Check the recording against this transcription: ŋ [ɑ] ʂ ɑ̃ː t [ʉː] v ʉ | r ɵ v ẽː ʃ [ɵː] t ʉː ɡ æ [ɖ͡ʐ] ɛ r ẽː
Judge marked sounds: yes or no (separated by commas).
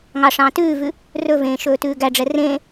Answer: yes, yes, yes, yes